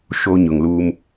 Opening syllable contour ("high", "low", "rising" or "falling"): high